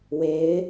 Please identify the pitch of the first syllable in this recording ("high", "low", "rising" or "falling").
rising